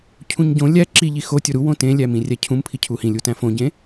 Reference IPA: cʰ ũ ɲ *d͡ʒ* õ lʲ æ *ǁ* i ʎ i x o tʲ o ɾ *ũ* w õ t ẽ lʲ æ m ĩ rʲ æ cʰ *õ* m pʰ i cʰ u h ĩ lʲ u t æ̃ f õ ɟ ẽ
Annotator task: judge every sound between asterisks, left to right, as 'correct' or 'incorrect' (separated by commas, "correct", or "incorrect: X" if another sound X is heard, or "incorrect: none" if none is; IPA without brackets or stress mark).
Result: incorrect: ɟ, correct, incorrect: u, incorrect: ũ